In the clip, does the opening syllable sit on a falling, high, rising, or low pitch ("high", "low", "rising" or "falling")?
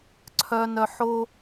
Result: low